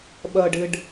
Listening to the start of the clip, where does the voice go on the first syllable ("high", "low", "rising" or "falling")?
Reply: low